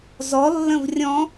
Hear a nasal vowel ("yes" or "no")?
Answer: yes